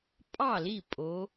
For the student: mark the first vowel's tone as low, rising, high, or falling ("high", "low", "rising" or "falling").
falling